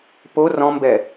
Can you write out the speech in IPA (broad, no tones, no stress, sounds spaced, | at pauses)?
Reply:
p o r ɔ̃ m b ɛ